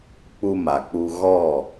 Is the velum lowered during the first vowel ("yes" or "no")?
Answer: no